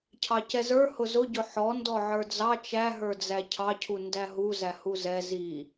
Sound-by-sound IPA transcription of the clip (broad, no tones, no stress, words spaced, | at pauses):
cʰɑcɛzə˞ hʊzʊɟʊ ħɔndɔ ʕə˞d͡zɑ t͡ʃæɦə˞d͡zæ cʰɑcʰu ndæɦuzæ huzɛ zi